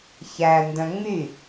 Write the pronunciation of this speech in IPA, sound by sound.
ç æ n d œ̃ ŋ͡m y

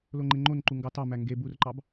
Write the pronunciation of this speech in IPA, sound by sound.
l o ŋ͡ǃ e ŋ͡ǃ o n ǃ u ŋ ɡ ɑ t ɑ m æ ŋ ɡ e b u r ǃ ɑ b

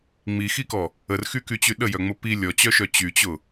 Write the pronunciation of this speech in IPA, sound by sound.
ŋ͡m i x i k ɔ | ə r x y k y t͡ɕ y ɗ ə j œ ŋ͡m ʊ p i lʲ ɔ t͡ɕ œ ʃ œ t͡ɕ y t͡ɕ ʊ

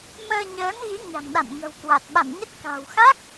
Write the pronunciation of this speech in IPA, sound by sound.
m əː˧ ɲ əː˨˦ n ɣ i˨˦ ɲ a̤˨˩ ŋ ɗ a̰˧˨ n ŋ ə̤˨˩ w k w a˨˩ t̚ ɓ a̰˧˨ n ɲ ə˦˥ t̚ k a̤˨˩ w x a˦˥ k̚

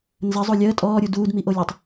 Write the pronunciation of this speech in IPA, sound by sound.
n z ə zˤ o lʲ əː tʼ ɔː ɾʲ u d uː d m i ʔ o lʲ o tˤ

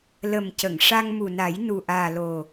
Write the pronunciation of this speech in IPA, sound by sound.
l ə˨˩ m c ə˨˩˨ ŋ ʂ a˧ ŋ m u˨˩ n a˨˩˦ j n u˨˩ ʔ aː˨˩ l o˨˩

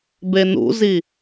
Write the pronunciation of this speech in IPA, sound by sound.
b e n ṵ z i

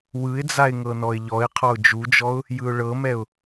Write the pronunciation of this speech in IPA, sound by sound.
w ɯ ɪ̯ d͡z a ɪ̯ ŋ ɤ n ɔ ɪ̯ ʎ ɔ ɪ̯ qʰ ɔ ʊ̯ d͡ʒ u d͡ʒ ɔ ʊ̯ | j ɯ ʊ̯ ɭ ɤ m ɛ ʊ̯

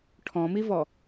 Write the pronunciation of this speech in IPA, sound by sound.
ʈʰ ɔ̃ m i v ɔ

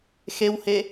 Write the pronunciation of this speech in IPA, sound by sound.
x e w h e

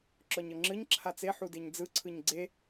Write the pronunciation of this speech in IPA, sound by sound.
ǁ ɔ ɲ ɤ ŋ͡ǁ ɯ ɲ ǁʰ a t͡s e ħ u d e ɲ d͡z ɯ ǀʰ ɯ ɲ ɡ͡ǀ e

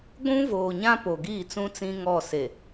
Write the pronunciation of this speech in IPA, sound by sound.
ɡʷ ũ˦ v oː˨ ɲ ã˦ p o˨ ɡ iː˦˨ t͡s ũ˦ t͡s ĩ˦ ŋ ɔ˦˨ s e˨

